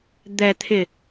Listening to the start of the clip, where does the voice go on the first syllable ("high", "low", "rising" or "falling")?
low